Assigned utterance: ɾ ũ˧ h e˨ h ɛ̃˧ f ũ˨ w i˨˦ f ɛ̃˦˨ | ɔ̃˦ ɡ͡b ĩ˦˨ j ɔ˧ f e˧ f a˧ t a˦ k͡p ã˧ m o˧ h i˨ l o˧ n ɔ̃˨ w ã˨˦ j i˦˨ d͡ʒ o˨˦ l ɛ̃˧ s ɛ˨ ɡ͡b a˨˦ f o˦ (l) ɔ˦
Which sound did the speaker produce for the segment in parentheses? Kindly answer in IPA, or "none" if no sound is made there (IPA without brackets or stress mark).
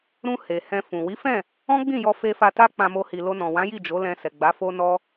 n